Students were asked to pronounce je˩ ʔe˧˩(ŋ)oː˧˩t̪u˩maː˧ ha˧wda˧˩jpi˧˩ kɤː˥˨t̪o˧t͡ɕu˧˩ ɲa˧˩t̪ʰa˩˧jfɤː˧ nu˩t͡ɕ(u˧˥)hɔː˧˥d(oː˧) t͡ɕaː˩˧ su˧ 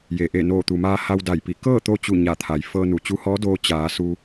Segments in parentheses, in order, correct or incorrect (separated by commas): incorrect, correct, correct